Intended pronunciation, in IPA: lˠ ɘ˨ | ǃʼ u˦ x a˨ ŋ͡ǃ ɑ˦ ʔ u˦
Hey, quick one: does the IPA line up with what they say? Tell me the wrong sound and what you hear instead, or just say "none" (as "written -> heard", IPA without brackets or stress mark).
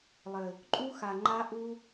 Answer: ɑ˦ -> a˦